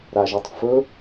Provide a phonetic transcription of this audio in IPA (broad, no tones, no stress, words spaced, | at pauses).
ɾaʒetˤfɵ